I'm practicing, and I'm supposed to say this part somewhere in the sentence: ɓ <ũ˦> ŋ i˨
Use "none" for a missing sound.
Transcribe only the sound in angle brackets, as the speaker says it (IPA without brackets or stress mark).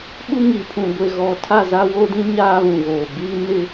u˦